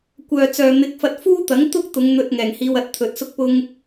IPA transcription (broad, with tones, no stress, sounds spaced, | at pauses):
kʷ œː˨ t͡s œː˨ n̪ ɪ˨˥ k̚ f ɐ˧ t̚ f uː˥ t̪ ɐ˨˥ ŋ t̪ ʊ˥ k̚ t̪ ʊ˨˧ ŋ n̪ ɵ˧ t̚ ŋ ɛː˨˩ ŋ h iː˧ w ɐ˨˥ t̚ t̪ʰ ɵ˨˥ t̚ s ʊ˥ k̚ p ʊ˥ ŋ